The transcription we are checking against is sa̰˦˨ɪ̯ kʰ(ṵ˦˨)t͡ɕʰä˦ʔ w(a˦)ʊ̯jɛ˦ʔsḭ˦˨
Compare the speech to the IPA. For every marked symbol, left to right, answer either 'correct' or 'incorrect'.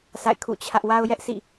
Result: correct, correct

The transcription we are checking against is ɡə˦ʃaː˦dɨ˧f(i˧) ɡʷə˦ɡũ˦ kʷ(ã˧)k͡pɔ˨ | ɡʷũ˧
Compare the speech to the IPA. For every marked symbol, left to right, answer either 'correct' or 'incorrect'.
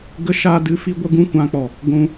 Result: incorrect, correct

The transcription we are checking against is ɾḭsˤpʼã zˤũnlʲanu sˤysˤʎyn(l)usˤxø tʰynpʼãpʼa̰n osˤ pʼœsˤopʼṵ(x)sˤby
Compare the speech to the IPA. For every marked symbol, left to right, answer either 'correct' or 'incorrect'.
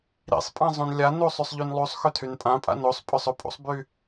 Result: incorrect, incorrect

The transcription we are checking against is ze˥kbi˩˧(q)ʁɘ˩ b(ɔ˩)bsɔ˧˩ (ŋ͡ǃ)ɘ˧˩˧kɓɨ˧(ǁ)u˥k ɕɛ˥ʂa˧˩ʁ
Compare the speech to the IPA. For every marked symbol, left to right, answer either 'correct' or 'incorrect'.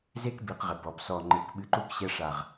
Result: correct, correct, correct, incorrect

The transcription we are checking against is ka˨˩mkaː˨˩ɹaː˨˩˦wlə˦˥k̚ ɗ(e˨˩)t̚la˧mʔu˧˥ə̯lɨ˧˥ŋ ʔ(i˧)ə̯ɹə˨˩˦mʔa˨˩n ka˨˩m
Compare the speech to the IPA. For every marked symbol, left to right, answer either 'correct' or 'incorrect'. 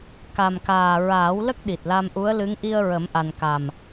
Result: incorrect, correct

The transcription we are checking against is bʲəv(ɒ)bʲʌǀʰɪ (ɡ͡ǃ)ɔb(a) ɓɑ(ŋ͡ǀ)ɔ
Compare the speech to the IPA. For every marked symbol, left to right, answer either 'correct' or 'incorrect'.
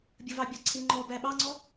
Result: incorrect, incorrect, incorrect, correct

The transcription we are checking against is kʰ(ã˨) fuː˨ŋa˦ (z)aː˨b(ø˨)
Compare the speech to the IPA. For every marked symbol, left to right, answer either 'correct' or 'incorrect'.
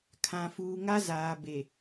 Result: correct, correct, incorrect

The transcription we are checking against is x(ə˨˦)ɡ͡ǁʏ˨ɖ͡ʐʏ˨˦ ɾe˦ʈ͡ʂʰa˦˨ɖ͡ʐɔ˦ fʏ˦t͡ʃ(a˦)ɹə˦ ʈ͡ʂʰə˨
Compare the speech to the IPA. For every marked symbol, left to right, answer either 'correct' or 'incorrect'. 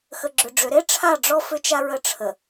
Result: incorrect, correct

